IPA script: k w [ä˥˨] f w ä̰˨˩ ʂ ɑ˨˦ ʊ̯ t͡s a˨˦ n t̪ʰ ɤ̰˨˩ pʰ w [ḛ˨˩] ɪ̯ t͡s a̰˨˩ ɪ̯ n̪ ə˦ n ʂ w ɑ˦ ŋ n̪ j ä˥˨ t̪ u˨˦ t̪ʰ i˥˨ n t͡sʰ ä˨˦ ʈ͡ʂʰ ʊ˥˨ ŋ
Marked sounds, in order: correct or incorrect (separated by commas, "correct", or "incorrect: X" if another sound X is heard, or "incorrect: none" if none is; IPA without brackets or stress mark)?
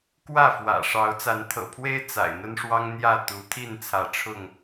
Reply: correct, incorrect: e˦